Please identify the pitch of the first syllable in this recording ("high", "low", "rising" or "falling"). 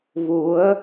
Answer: rising